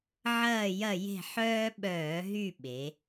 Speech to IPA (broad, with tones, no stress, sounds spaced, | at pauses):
ʕ ɐː˦˨ j ɐ˦˨ j e̤˦˨ ħ œː˦ ɓ œː˧˩˧ ɦ y˦˨ ɓ e˩˧